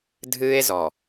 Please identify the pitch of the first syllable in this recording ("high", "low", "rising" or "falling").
high